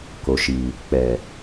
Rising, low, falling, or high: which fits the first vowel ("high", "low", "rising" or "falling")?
low